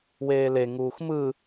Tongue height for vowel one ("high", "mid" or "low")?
mid